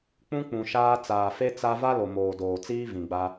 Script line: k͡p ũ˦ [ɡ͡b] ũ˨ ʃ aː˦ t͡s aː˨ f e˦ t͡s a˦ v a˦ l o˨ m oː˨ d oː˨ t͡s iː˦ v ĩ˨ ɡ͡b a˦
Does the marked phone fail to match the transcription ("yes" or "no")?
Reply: yes